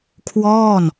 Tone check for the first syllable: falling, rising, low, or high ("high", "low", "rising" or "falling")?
falling